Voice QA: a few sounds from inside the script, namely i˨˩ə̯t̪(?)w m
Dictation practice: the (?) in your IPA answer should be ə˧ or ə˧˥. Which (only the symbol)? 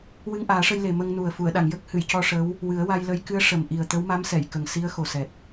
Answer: ə˧˥